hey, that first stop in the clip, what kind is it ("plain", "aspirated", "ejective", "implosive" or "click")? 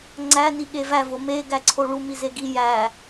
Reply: click